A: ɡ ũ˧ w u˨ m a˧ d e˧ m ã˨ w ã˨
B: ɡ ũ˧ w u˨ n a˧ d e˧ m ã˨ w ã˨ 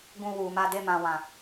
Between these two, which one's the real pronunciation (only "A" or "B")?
A